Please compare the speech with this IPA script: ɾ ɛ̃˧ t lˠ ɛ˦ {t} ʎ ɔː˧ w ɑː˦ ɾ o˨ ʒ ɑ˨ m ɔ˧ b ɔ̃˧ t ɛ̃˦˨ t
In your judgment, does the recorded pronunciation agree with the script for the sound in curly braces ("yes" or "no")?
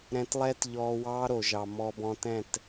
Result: yes